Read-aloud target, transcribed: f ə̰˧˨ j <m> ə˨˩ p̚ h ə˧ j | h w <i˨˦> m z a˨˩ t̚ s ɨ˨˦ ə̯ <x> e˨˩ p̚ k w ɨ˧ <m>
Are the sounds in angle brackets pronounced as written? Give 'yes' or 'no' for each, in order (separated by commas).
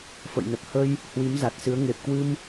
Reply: no, yes, no, yes